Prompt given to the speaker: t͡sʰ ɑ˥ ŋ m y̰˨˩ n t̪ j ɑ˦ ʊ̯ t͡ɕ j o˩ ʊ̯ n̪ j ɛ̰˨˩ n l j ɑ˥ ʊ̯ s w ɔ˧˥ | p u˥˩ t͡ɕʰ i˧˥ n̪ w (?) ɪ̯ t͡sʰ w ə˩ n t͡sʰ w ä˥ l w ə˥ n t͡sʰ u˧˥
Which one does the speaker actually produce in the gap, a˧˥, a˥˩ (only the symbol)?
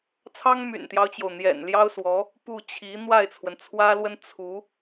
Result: a˥˩